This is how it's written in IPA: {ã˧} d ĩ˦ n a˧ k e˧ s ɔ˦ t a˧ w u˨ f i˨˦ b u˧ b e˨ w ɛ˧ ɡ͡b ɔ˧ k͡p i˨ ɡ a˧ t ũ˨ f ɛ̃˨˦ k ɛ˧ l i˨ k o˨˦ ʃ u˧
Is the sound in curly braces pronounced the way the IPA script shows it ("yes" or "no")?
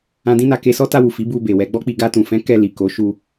no